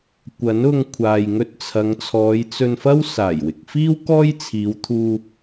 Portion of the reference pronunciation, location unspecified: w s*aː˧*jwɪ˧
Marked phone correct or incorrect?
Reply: incorrect